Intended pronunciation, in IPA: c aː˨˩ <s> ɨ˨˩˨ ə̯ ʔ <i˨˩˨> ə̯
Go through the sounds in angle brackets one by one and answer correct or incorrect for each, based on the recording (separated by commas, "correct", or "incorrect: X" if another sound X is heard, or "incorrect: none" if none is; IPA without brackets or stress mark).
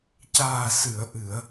correct, incorrect: ɨ˨˩˨